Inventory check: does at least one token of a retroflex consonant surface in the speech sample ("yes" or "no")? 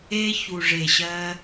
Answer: yes